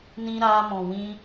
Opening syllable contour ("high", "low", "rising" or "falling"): high